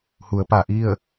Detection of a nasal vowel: absent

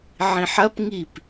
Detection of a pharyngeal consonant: present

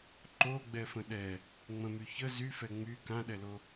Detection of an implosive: present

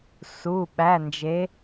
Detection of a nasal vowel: absent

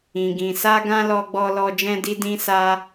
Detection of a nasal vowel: present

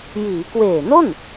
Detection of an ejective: absent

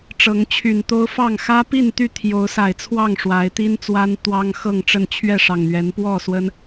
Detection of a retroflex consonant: present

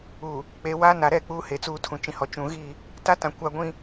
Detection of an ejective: absent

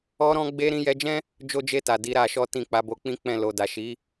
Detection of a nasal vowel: present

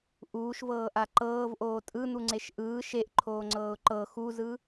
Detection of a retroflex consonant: absent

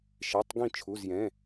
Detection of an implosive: absent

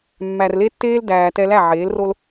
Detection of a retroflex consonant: absent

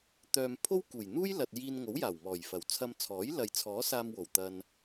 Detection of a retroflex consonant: absent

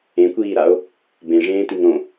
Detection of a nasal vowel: present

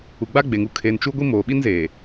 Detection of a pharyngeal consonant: absent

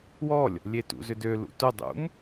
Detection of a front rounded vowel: present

